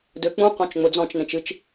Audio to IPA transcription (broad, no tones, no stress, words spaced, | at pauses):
døk͡pũ qɔ̃t͡ʃŋ͡mʊd͡zɔ̃t͡ʃnẽt͡ʃ ɨt͡ʃ